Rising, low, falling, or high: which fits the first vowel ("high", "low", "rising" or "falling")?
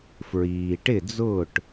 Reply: low